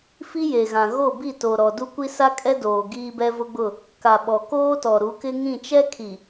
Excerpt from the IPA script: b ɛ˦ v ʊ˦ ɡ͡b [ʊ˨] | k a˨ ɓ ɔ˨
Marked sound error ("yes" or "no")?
yes